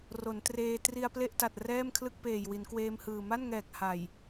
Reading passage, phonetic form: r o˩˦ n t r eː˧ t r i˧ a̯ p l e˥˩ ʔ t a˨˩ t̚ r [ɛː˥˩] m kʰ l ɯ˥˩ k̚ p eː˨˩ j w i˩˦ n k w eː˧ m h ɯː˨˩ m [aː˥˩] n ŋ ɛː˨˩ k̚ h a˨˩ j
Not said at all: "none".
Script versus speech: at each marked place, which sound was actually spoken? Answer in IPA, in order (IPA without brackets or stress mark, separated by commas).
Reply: ɛː˥˩, a˥˩